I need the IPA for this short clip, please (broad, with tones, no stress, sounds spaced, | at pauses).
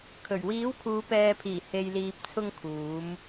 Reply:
kʰ ɵ˨˩ ɥ w iː˨˥ w kʰ uː˨˧ p ɛː˨ pʰ iː˨˩ h e˨ j l iː˨ p̚ t͡sʰ ʊ˧ ŋ kʰ uː˨˧ m